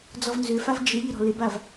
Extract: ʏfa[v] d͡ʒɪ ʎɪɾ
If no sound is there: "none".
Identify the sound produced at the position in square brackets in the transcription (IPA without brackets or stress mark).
v